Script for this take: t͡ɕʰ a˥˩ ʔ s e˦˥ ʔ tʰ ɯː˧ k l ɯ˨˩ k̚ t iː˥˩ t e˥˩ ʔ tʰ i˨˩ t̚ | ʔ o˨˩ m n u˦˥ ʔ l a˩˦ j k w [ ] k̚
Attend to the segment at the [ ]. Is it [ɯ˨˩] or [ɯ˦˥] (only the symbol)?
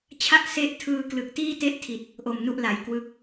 ɯ˦˥